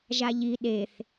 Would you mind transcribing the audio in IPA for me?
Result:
ʒ a ʎ i ɗ e θ

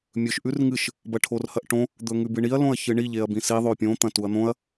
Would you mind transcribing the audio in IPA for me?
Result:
mʲ ɵ ʃ ʔ ʉ r ŋ ɨ ʃ | b ɐ ʈʰ o r h ɐ ʔ ʈ õ | d̪ ɵ ŋ ʉ b ɨ ɳ i ɐ̯ l õ ɐ̯ ç ɨ ɳ i ʎ e ɐ̯ b ĩ s i ðˤ o pʲ õ t̪ ɐ̃ t u ɐ̯ n̪ õ ɐ̯

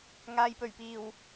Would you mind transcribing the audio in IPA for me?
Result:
ŋ aː˨ j p ɵ˨˩ ɥ p iː˨˩ w

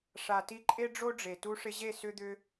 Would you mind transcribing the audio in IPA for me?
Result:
ʂ a˨ t i˧ ǃʼ e˦ ɖ͡ʐ o˦ ɖ͡ʐ e˨ t u˧ ʂ ɪ˧ ʑ e˦˨ s ʏ˧ d̪ ʏ˧

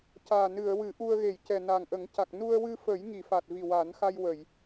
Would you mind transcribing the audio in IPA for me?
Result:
c aː˨˩ n ɨ˨˩˨ ə̯ w ɨ˨˩˦ ʔ u˧ ə̯ ɣ e˨˩˨ j c ɛ˨˩ n a˨˩ ŋ ʔ ə˨˩˦ ŋ c a˨˩ k̚ n u˧ ə̯ w ɨ˧ f ə˨˩˦ j ŋ i˨˩˨ f a˨˩ t̚ v i˨˩ w a˨˩˦ n x a˧ j w ə˨˩˨ j

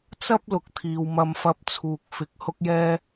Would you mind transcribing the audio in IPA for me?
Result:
t͡s ɐ˥ p̚ l ʊ˨ k̚ t̪ʰ iː˨ w m ɐ˧ m f ɐ˧ p̚ t͡sʰ uː˨ k̚ f ɪ˧ k̚ h ʊ˥ k̚ j ɛː˥

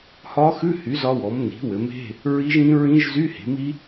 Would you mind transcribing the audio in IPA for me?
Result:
h ɒ˧˥ x ʉ˧˥˧ h y˩˥ z ɒ˧˥ w ɔ˩˥ m n i̤˩˥ w ɘ˩˥ m e̤˧˥˧ | ɹ i˧˥ ʒ ĩ˧˥ ɹ ĩ˧˥ ʒ z y˧˥˧ h e̤˩˥ m i˧˥

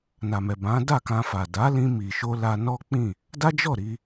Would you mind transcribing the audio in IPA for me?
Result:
n a˨ m ɛ˨ b ã˨˦ d a˦˨ k ã˧ f a˨ d a˨˦ l ĩ˧ m i˨ ʃ o˧ l a˧ n ɔ˦ k͡p ĩ˦˨ | d a˦ d͡ʒ ɔ˦˨ ɾ i˧

